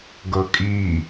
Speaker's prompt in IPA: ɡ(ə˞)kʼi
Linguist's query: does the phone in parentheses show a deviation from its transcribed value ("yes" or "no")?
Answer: yes